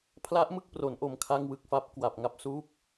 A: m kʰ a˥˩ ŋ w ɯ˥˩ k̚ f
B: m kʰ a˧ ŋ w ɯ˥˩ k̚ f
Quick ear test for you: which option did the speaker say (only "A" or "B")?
A